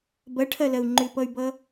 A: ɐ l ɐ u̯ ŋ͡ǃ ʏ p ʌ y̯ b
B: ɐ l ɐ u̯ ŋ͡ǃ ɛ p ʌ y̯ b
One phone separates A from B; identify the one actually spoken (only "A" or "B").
A